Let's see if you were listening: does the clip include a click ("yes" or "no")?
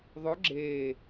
yes